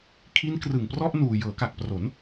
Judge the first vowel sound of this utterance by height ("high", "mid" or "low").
high